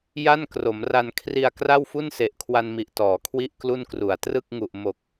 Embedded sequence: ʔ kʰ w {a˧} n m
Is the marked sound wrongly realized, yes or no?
no